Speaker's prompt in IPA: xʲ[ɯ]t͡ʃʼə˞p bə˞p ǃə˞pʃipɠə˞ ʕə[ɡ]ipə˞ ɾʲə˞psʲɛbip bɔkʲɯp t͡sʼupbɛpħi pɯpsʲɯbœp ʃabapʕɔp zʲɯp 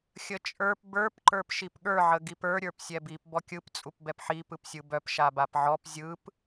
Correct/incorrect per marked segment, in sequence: incorrect: ə, correct

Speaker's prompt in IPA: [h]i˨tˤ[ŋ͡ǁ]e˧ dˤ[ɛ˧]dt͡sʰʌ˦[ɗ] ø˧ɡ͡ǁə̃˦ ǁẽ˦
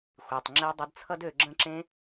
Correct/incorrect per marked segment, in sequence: incorrect: xʷ, correct, incorrect: ə˧, incorrect: d

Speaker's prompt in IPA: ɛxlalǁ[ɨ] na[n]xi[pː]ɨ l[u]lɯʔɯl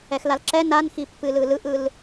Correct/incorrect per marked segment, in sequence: incorrect: ɛ, correct, correct, incorrect: ɯ

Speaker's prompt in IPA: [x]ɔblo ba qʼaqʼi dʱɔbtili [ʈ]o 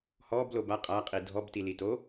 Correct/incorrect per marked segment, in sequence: incorrect: h, incorrect: t

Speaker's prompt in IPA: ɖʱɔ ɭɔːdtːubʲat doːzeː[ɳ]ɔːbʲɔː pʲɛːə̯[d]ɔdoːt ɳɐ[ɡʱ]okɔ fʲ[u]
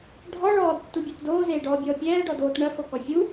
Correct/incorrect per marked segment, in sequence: incorrect: ɖ, incorrect: ɖ, incorrect: x, correct

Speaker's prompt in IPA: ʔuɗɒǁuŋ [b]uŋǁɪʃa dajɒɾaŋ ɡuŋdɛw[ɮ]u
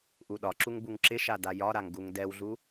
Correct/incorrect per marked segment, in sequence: correct, correct

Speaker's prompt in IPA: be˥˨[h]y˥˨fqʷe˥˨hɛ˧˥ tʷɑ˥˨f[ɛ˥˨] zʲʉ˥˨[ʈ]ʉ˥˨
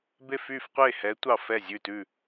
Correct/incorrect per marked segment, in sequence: incorrect: f, correct, incorrect: t

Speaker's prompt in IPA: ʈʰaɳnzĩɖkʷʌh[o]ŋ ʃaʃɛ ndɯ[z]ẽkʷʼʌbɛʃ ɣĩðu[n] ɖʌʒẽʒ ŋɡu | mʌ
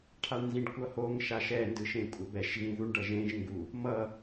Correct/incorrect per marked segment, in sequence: correct, incorrect: ʃ, incorrect: ɳ

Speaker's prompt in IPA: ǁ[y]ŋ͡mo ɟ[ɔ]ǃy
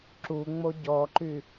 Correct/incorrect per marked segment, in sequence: incorrect: u, correct

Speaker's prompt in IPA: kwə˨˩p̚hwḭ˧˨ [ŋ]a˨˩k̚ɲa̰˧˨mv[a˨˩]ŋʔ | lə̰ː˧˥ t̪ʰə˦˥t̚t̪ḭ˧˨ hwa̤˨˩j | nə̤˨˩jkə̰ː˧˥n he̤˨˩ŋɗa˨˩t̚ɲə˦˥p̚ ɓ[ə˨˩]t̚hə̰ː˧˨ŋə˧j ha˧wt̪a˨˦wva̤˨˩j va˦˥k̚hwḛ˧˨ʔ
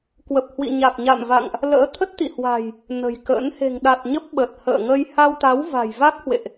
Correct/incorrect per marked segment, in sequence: incorrect: ɲ, incorrect: a̰˧˨, correct

